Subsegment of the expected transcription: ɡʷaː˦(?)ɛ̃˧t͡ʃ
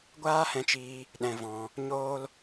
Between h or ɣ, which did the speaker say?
h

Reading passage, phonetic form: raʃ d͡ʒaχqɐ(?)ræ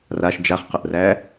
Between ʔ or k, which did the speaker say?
ʔ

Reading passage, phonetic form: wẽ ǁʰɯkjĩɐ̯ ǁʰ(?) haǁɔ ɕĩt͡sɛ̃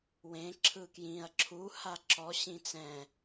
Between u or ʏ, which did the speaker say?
u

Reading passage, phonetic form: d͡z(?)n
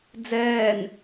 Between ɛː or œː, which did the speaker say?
ɛː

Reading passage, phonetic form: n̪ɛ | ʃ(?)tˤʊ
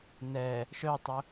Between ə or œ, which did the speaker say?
œ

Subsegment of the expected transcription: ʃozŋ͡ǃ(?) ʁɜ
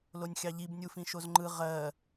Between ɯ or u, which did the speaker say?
ɯ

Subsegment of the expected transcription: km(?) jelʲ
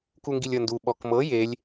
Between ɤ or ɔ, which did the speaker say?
ɤ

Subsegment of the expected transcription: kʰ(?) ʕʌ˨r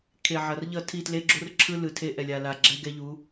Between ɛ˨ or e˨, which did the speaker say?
e˨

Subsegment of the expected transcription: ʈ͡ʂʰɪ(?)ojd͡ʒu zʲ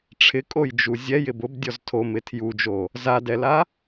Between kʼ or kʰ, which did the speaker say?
kʼ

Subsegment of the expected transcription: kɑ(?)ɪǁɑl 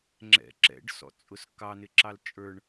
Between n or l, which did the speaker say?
n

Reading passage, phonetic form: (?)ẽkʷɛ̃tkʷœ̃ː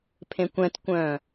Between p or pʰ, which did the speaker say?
pʰ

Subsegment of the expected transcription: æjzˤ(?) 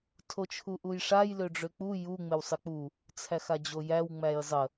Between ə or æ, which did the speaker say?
ə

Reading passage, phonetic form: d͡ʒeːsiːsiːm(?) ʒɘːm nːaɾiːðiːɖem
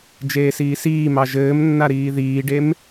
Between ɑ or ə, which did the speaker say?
ɑ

